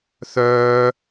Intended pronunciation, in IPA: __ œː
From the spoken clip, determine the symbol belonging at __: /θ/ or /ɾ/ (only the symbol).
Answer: θ